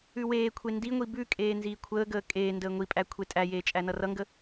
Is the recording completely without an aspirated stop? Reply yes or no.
no